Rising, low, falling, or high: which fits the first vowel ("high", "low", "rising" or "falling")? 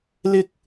high